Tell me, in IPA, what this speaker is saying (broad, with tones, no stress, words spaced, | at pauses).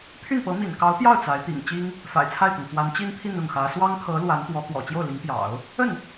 pʰy˥˩npɤ˧˥ mḭ˨˩n kɑ˧˥ʊ̯pjɑ˥˩ʊ̯ t͡sa˧˥ɪ̯ t̪ḭ˨˩ŋt͡ɕi˥ŋ | fa̰˨˩ɪ̯t͡sʰa˥˩ɪ̯t̪ɤ˩ŋfwa˧˥n t͡ɕi˥npʰi˥˧n ʊ˥˩ŋxä˧˥ swɑ˥ŋkʰɤ˧˥ lwa˧˥nt̪wɔ˧˥ kwɔ̰˨˩t͡ɕjo˥˩ʊ̯li˧˥ŋpjɑ̰˨˩˦ʊ̯ | ə˥˩n